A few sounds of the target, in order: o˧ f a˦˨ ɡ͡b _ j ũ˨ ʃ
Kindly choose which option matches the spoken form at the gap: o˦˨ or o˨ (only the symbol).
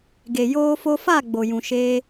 o˨